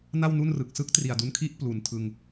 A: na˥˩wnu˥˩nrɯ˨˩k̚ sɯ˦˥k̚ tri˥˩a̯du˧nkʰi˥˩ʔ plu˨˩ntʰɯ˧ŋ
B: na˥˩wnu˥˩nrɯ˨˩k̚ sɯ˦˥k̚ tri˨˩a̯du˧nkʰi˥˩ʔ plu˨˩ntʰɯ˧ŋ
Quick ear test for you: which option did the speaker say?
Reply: B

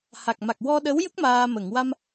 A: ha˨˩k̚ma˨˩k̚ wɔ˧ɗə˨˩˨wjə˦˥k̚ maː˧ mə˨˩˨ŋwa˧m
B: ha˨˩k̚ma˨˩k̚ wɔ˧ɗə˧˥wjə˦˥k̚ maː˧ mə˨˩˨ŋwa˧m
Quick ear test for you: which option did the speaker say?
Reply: B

